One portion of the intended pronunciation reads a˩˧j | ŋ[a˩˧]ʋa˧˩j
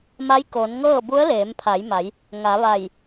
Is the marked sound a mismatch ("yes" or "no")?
no